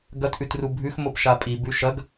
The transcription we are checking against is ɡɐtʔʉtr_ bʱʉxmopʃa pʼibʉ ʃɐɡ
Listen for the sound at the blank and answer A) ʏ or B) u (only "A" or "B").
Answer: B